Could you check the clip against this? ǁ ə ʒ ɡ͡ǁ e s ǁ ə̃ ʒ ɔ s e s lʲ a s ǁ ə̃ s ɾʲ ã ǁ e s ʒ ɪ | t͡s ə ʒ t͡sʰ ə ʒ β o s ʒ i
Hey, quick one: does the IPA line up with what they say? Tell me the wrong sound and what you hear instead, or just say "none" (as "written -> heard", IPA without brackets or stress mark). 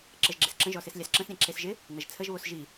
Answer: t͡s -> n